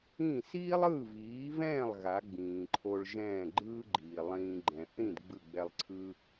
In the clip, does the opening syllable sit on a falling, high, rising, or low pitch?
falling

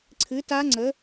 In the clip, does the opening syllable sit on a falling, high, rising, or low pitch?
rising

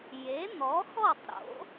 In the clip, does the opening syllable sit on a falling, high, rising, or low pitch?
rising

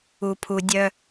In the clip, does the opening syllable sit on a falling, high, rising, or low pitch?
low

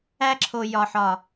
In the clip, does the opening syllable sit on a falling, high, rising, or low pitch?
high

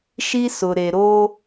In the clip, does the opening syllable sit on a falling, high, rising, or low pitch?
high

